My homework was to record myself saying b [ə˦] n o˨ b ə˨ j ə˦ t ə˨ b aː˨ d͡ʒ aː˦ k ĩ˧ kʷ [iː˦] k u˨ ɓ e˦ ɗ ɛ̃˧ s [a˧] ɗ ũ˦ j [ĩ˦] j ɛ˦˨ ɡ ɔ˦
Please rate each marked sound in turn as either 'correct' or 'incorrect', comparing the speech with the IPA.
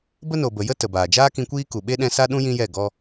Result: correct, correct, incorrect: a˦, correct

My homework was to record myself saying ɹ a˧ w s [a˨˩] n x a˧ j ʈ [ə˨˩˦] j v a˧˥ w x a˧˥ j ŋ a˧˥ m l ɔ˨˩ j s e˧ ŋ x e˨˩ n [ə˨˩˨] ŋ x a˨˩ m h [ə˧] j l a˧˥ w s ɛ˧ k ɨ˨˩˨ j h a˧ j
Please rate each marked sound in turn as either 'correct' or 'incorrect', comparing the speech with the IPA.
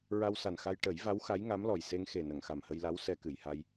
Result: correct, correct, correct, correct

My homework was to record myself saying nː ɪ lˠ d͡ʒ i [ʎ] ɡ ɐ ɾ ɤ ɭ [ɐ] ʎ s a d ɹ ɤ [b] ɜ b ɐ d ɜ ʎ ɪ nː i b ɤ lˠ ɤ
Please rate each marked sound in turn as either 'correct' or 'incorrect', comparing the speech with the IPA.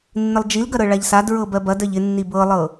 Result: incorrect: l, incorrect: a, correct

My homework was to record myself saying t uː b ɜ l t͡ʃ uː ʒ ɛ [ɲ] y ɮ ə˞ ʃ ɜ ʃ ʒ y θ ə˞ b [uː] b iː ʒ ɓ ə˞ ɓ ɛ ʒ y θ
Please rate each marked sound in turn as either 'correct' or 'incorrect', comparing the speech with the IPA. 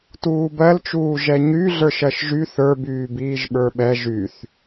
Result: correct, incorrect: yː

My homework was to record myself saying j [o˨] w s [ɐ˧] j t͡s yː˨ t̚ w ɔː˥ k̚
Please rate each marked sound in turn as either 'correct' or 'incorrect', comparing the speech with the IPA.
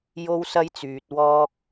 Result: incorrect: o˥, incorrect: ɐ˥

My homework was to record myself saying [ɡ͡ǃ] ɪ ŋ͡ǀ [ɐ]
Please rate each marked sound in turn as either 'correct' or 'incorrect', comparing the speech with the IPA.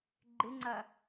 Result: correct, correct

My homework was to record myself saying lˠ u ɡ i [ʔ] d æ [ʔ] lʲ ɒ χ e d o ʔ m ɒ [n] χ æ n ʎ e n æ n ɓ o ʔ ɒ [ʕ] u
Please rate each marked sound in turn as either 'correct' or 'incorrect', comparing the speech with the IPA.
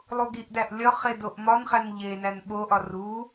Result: correct, correct, correct, incorrect: r

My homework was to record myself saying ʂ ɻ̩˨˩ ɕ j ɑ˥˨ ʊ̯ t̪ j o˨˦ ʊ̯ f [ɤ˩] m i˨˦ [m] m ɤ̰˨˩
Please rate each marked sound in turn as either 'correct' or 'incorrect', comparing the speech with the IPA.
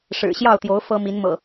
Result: incorrect: ɤ˦, incorrect: n

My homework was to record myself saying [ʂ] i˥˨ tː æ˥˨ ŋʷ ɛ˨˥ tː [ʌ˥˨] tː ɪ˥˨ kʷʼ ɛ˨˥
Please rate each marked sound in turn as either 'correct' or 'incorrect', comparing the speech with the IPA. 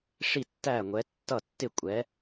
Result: correct, correct

